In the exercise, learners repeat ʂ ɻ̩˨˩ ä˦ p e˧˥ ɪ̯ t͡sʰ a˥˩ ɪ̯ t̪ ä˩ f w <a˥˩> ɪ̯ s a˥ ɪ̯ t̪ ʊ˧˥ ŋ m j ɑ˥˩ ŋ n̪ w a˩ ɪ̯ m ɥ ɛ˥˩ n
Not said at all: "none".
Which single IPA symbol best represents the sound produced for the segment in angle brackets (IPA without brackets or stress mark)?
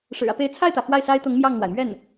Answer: a˥˩